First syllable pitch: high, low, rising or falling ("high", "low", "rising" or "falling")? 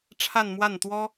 falling